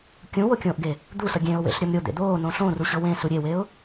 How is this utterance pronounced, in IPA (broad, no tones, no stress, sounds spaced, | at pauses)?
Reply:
kʲ ũ w o kʲ õː ʔ ɡ e | d̪ u s ʌ ɡʲ ẽ ʊ̯ w ḛ ɬ ɾʲ ʌ m ɾʲ o d̪ ḛ d̪ oː n õ ɬ õ r u ɕ ɤ w ẽ s u ɾʲ e w e ʊ̯